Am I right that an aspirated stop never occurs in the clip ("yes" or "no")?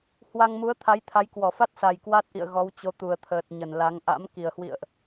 no